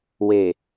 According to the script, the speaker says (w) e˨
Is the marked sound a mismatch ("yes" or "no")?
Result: no